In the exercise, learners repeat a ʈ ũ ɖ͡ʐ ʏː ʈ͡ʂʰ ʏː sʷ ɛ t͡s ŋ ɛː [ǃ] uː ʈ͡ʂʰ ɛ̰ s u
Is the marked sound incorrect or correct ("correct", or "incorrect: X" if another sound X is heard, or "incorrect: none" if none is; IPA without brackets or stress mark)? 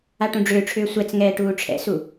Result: incorrect: ʈ